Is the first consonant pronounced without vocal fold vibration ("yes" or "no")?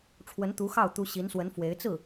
yes